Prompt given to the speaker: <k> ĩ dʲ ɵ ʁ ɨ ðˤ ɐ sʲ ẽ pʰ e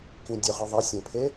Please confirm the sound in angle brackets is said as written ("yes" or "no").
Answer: yes